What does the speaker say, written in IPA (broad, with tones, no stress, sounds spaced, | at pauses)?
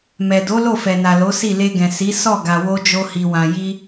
m ɛ˨ d o˨˦ l o˦˨ f ɛ˨ n a˨ l o˨˦ s i˦˨ l e˧ ɡ ɛ̃˨ s i˨˦ s ɔ˦˨ ɡ a˨ w o˧ d͡ʒ o˧ h i˨ w ã˨ j i˧